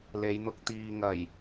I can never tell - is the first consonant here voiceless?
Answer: no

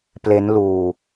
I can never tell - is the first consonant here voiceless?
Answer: yes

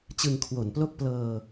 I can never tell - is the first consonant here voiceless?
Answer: yes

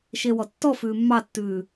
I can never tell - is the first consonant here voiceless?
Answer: yes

